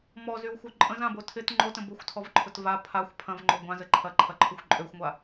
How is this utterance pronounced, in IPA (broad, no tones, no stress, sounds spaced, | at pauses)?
m ɔ z y w xʷ œ ǃʼ ə̃ z ã b o tʰ ɪ t ŋ͡ǃ o t ə̃ b ʊ xʷ tʰ ɔ v ǃʰ ʊ t v a pʰ a xʷ pʰ ɐ̃ v ŋ͡ǃ o ɡʷ ã z ə ǃʰ ɐ ǃʰ ɐ ǃʰ ʊ xʷ ǃʼ ø xʷ ŋʷ a